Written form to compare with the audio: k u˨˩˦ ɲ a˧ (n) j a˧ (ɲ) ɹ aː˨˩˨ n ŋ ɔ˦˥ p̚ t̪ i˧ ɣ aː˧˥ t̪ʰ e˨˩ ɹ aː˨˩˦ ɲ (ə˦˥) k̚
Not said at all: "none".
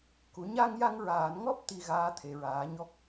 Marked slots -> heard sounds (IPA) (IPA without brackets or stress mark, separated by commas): ŋ, ŋ, ɔ˦˥